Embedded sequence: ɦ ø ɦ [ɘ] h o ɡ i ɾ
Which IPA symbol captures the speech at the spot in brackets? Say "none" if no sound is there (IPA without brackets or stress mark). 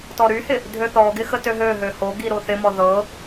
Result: ø